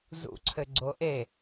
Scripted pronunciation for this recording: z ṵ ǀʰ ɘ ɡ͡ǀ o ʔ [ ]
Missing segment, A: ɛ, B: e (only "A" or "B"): B